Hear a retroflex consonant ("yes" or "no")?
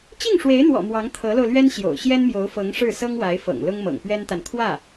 yes